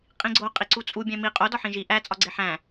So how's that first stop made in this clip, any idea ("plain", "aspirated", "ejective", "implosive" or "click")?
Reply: ejective